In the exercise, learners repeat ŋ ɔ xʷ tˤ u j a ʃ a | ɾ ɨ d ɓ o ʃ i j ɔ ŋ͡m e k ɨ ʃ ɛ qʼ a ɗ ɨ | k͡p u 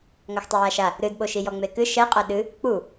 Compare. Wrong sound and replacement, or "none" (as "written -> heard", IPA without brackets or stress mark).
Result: none